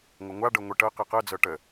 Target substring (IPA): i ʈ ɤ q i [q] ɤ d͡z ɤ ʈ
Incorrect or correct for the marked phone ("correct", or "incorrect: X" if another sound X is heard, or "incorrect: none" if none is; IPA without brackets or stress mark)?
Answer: correct